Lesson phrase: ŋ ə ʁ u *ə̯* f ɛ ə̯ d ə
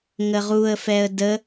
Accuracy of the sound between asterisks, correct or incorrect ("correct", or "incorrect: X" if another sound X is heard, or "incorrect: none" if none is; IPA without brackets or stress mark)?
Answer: correct